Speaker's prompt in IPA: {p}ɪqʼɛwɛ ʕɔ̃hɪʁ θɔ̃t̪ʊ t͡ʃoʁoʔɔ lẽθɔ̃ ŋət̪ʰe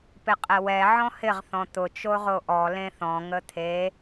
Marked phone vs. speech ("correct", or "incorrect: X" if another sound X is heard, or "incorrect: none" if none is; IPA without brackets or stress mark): correct